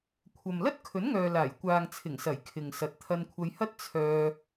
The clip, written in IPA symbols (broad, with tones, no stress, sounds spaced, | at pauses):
kʷʰ ɐ˨ m l ɐ˥ t̚ kʰ ɵ˨˥ n ŋ œː˨ l aː˨˩ j kʷ aː˨ ŋ t͡sʰ ɪ˨˩ ŋ s ɐ˨˩ j kʰ ɪ˨ ŋ s ɐ˨ t̚ t̪ʰ ɐ˧ n kʷʰ ɐ˧ j h ɐ˥ t̚ t͡sʰ œː˧